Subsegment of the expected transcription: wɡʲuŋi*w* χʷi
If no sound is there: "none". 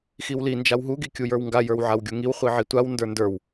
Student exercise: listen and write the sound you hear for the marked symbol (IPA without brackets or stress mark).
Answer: w